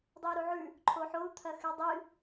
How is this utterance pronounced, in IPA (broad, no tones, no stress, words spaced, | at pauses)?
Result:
dˤɨi̯ɾuʕʉ | ǃʰoħou̯ t̪ʰɐxɨdˤɨ